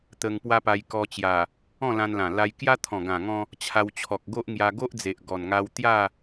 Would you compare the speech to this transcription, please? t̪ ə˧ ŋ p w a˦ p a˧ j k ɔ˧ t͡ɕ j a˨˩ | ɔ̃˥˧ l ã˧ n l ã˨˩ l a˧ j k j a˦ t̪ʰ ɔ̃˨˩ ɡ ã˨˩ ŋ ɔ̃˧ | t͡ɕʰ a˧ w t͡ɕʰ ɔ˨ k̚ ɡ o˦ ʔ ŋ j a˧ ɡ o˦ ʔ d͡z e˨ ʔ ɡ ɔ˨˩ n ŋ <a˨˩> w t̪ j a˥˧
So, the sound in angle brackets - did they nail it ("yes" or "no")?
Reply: no